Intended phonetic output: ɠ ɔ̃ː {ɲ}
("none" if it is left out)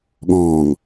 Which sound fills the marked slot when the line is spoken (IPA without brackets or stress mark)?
ŋ